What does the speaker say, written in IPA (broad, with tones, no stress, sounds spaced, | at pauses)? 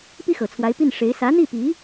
p i˥ x ɤ˨˩ t͡sʰ w a˧˥ ɪ̯ p i˥˩ n ʂ e˧˥ ɪ̯ s ä˧˥ n̪ i˥˩ p i˧˥